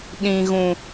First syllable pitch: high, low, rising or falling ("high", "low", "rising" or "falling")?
low